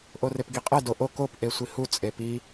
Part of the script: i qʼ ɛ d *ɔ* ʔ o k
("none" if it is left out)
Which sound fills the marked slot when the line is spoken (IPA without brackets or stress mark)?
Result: o